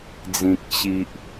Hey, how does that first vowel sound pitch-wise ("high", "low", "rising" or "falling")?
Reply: low